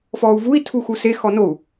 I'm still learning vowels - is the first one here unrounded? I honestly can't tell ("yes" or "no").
no